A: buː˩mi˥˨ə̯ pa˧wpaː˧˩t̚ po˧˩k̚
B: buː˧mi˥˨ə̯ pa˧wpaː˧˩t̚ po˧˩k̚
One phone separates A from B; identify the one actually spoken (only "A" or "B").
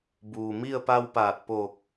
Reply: A